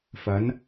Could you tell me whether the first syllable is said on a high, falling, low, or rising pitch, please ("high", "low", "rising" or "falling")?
rising